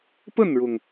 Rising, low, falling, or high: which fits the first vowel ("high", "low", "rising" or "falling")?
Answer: falling